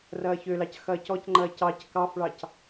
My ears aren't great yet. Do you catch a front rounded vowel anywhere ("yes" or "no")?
yes